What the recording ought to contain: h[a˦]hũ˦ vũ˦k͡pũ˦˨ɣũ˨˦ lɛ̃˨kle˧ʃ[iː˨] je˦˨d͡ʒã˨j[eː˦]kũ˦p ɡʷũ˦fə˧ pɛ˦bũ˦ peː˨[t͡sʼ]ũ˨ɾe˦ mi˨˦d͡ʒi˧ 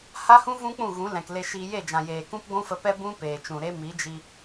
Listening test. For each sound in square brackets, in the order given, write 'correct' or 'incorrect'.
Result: correct, incorrect: iː˧, incorrect: eː˨, incorrect: t͡ʃ

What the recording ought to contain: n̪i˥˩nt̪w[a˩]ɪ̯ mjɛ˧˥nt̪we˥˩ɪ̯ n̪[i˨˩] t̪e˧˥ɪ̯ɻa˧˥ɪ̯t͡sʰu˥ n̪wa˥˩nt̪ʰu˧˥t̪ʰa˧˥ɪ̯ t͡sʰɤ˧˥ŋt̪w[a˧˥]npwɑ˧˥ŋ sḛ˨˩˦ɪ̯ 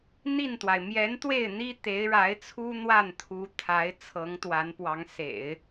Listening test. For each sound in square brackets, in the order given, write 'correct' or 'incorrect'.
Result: correct, incorrect: i˥, correct

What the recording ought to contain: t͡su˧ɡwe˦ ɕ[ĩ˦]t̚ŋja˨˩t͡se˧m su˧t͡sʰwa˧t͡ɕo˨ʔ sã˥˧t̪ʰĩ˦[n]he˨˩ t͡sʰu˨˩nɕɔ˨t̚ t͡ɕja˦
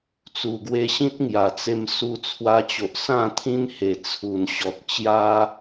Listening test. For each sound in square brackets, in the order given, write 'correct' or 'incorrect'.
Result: correct, correct

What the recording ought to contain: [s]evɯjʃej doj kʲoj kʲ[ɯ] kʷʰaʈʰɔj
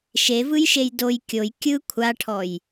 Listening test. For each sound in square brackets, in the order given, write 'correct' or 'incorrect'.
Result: incorrect: ʃ, correct

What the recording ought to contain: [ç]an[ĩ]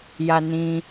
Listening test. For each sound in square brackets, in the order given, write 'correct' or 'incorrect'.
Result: incorrect: j, correct

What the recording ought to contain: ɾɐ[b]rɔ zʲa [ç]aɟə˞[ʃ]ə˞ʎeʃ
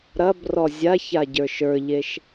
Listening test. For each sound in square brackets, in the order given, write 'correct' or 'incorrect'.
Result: correct, correct, correct

